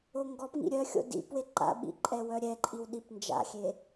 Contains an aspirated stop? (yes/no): no